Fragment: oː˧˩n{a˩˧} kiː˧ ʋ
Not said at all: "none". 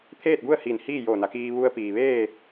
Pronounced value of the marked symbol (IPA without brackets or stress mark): a˩˧